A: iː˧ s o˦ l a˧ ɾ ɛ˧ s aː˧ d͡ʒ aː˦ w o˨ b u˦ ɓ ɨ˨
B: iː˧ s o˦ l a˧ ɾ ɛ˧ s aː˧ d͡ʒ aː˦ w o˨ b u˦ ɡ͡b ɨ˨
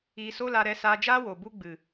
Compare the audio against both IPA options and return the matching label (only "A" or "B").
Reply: B